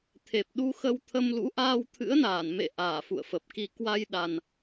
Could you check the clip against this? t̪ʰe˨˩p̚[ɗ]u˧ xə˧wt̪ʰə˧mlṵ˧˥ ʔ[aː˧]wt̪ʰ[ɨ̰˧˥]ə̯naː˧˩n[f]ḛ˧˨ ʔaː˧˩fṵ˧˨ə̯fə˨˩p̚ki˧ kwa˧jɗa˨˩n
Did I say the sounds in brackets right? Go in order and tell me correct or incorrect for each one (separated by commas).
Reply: correct, correct, correct, incorrect